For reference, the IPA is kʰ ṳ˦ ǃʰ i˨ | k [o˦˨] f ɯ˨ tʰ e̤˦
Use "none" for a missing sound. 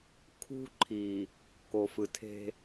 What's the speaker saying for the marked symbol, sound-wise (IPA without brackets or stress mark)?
o˨